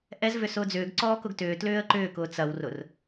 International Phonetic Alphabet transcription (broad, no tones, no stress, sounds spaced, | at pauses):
ʔ ɛ z v ʏ s ʊː d͡z ʏː ɡ ǀ ɔː k ʊ ɡ t ʏː t l ʏː ə̯ ǃ ʏː k ʊː t͡s ɐ w r ʊ r